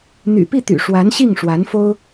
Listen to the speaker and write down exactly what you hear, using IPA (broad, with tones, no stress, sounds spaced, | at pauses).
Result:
n̪ y̰˨˩ p i˥˩ t̪ y̰˨˩ ʂ w a˧˥ n ɕ i˥˩ ŋ ʂ w a˧˥ n f o˥ ʊ̯